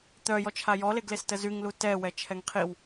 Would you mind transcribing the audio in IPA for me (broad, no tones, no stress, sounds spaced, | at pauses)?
t̪ œ j ɔ t͡ʃʰ a j ɔ l e ɡ l e s t ə z y ŋ l u t ɛ w ɛ t͡ʃʰ ɛ ŋ qʰ i w